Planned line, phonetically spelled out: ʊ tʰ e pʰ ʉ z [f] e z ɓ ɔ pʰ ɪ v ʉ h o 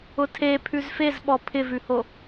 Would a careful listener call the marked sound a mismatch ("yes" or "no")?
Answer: no